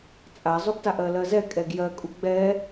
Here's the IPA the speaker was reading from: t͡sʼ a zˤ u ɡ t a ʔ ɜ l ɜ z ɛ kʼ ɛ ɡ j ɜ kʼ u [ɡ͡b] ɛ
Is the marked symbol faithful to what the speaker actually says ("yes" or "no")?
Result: yes